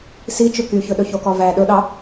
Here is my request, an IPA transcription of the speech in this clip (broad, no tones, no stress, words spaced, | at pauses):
si t͡ʃɵkyçɵ ɗɵçokɔvæ ɗɵɗɑ